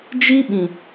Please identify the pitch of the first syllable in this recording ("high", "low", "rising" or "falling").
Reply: high